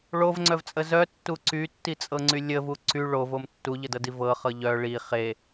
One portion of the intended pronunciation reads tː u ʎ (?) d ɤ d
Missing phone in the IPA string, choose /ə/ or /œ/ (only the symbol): ə